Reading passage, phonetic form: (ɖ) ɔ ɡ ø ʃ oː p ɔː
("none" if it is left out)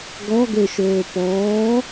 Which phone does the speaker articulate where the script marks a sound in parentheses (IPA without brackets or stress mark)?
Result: ɡ